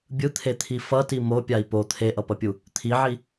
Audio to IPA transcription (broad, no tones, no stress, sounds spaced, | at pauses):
bʲ ɯ t̪ʰ e t̪ʰ i f ʌ t i m o pʲ a i̯ p o t̪ʰ e ʔ ʌ p ʌ pʲ u | t̪ʰ i ʕ i